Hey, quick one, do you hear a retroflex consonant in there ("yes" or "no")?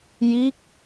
no